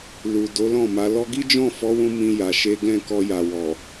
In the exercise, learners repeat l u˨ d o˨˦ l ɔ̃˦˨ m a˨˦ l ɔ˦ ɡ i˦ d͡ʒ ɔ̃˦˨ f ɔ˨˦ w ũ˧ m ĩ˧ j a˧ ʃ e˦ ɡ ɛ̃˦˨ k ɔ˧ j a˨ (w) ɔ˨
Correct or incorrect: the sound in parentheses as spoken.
correct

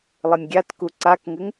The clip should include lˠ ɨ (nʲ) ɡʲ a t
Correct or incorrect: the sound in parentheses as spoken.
correct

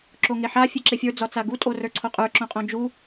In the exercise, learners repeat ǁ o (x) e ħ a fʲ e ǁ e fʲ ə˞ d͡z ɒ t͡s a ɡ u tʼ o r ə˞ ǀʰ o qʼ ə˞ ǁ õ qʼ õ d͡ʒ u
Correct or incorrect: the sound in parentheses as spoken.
incorrect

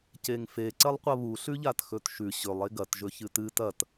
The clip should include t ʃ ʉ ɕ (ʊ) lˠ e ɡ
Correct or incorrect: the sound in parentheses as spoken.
incorrect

